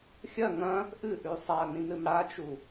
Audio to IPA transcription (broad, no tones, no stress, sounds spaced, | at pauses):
xʲ ɐ ŋ ɐ̃ | ʔ ɨ ʔ ʉ sˤ a n ĩ m ɾ ɨ m ɽ a t͡ʃ u